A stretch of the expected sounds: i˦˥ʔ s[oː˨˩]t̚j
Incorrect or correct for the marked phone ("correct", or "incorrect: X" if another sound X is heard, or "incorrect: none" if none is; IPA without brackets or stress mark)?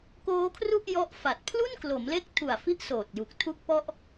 correct